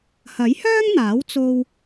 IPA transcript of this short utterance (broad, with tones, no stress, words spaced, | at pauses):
hɐ˨˥jhœː˥ŋn̪aː˨˥w t͡so˥w